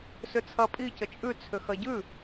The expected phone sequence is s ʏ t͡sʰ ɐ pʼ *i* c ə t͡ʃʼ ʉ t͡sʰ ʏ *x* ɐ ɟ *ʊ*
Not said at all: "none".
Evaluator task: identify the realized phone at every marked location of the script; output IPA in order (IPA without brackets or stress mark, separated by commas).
i, x, ʉ